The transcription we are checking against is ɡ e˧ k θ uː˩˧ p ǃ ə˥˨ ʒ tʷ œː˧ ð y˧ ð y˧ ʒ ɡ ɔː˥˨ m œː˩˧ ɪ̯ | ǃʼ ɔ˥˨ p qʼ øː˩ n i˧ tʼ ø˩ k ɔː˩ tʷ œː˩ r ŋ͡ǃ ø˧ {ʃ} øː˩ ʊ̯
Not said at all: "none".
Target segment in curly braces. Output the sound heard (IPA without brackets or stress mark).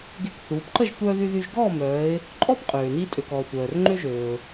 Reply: ʒ